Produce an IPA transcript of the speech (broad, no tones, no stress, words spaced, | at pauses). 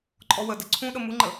ǃʼɔwə də ǀʰũɗə muŋ͡ǃə